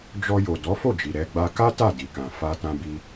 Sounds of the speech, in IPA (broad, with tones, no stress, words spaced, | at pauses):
d͡ʒɔ˧jo˨ dɔ˨˦fo˦˨d͡ʒi˨ ɾɛ˧ ɡ͡ba˧ka˦ ta˦˨di˨kã˨ fa˧tã˧bi˧